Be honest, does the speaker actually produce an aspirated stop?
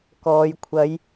yes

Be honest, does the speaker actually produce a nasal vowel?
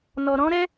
yes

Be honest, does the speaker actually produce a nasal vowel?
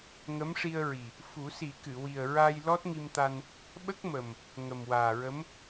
no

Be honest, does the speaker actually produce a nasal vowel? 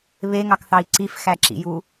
no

